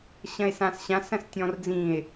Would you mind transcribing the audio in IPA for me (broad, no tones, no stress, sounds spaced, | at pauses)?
ɕ ɐ̃ e̯ s ã s ɕ ã s ɐ̃ s tʲ ɔ̃ r d͡z ĩ e̯